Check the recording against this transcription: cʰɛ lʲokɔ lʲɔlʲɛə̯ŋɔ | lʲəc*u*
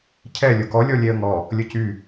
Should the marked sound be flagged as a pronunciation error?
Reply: yes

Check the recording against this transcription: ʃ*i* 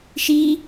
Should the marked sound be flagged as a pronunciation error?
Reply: no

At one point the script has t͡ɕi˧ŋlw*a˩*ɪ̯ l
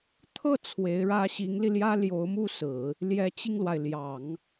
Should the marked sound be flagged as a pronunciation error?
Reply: no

